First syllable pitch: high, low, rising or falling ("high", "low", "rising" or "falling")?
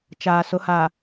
low